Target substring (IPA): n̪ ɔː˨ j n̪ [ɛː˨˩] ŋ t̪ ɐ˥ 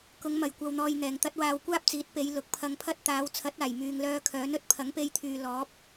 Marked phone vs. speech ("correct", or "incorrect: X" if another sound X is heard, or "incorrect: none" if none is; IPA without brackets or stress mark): correct